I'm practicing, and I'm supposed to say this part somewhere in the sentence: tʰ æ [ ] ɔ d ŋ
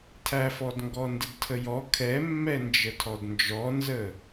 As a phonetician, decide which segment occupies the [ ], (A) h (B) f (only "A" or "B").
B